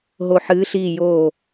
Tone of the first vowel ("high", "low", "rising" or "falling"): falling